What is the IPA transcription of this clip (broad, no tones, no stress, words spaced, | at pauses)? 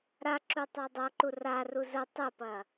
ɾaǁu tˤadˤɐǃu ra ruzə tˤɘpɐ